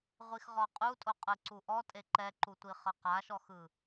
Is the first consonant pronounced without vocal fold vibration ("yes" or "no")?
no